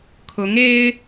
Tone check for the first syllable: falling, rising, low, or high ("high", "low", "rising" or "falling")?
rising